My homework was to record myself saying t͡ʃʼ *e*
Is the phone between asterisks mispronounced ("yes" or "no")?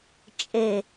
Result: no